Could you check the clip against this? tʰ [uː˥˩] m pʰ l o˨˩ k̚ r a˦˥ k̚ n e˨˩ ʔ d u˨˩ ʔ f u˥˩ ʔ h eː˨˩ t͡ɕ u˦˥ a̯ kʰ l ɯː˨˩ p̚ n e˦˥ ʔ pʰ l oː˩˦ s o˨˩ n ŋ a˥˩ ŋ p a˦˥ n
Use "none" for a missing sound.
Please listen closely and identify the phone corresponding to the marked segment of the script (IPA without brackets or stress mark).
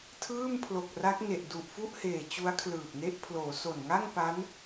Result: ɯː˥˩